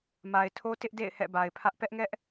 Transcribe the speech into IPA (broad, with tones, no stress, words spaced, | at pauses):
ma˨ɪ̯tʰo˦ tɪ˦ʔdḛ˦˨ɪ̯ hɛ̰˦˨ba˨ɪ̯pʰä˦ʔ pɛ˦ʔŋɛ˦ʔ